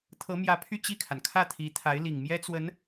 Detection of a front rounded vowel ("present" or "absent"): present